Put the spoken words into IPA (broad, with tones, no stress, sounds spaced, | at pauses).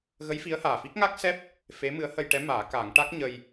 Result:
ɣ ə˧˥ j f i˧˥ ə̯ h aː˨˩ f i˦˥ k̚ ŋ a˦˥ k̚ s ɛ˦˥ p̚ | f e˧˥ m ɨ˧˥ ə̯ h ə˧ j ʈ ɛ˧˥ m aː˨˩˦ k a˨˩˦ ŋ ʈ a˦˥ k̚ ɲ ə˧ j